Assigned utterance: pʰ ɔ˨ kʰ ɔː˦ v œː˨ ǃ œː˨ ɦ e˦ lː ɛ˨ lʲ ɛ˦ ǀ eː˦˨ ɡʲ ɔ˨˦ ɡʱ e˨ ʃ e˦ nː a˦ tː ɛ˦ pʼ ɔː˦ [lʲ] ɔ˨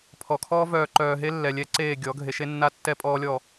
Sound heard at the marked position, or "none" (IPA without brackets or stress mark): lʲ